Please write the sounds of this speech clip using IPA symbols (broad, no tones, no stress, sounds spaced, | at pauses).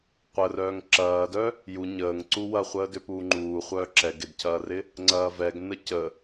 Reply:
qʷ ə r œː ŋ ǁ ɐː d œ | j u ɲ əː ŋ ǀ u w ɐ χʷ əː d ʏ p uː ŋ͡ǃ uː χʷ œː ǁ ɛ ɡ ɪ d cʰ ɐː r ɪ | ŋ͡ǀ ɐː v ɛ ɡ n ə c ə